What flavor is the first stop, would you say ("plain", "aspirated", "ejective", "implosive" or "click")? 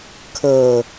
aspirated